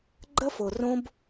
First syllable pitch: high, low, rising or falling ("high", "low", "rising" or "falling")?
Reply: high